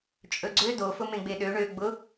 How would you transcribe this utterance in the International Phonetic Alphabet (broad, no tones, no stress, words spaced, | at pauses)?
t͡ʃʼɵɡ͡ǀø do fʊmẽɡ͡beɗø ɳø ɡ͡bʊ